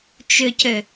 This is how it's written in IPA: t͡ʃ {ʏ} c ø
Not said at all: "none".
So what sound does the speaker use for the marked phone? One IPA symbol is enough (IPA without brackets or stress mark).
ʏ